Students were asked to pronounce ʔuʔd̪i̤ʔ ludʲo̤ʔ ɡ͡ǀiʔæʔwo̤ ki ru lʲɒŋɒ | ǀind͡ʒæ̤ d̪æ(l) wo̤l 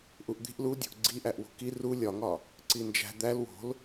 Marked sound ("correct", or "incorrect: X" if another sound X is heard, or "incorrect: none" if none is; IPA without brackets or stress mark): correct